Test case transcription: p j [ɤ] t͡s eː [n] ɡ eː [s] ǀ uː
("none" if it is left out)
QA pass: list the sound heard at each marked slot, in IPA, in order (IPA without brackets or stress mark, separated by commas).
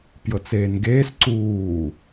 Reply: ɤ, n, s